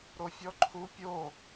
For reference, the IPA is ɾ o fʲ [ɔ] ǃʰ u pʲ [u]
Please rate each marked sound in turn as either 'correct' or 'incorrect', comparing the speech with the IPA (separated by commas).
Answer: correct, incorrect